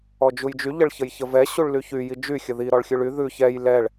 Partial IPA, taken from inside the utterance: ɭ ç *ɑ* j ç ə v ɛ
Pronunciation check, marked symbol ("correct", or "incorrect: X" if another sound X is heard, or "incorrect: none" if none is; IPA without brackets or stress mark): incorrect: ə